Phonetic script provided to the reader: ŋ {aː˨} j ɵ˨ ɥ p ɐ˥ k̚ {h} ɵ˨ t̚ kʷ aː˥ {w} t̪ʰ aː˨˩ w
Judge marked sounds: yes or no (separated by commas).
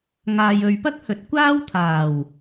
yes, yes, yes